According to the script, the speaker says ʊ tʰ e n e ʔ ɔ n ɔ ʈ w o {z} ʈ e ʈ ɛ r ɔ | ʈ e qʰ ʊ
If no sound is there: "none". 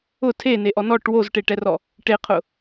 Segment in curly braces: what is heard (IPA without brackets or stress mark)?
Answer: z